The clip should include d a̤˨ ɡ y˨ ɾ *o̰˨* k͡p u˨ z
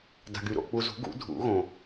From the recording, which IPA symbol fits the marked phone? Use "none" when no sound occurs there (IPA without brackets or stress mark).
o̰˨